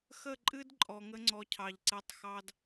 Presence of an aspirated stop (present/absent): present